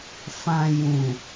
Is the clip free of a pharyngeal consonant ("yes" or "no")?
yes